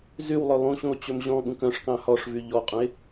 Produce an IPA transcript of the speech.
zywlˠɵ lˠũɕũo̯ t͡ɕɵmʑɔ̃ɠũk œ̃ʂkɑ̃ hɔʂvy ʎɔqʼũe̯

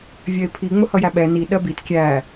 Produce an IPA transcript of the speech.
vʲɜɪ̯pʰi ŋ͡mʊhʌjæɓɛ ni ɗɜbit kʲæ

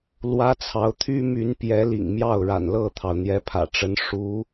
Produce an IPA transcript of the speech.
lwä˥t͡sʰɑ˧˥ʊ̯ t̪ʰy˥ my˧˥npjɛ˧˥lḭ˨˩ŋ mjɑ˥˩ʊ̯ɻa̰˨˩nlɤ˥˩t̪ʰɑ˩ʊ̯ n̪jɛ˧˥pʰä̰˨˩ʈ͡ʂə˧˥n ʂu˧˥

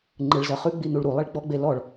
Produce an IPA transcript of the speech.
ŋ͡ǃɯɭzɜχʉ ɡ͡binuɭɾu lˠiɭɡ͡bɔ ɡ͡belɔɭ

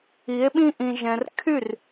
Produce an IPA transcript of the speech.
i˨˦e̯ɓĩ˦ ʔĩ˧ʒɛ̃˧r kʰy˦˨r

